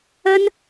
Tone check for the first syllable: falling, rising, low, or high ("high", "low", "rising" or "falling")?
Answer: high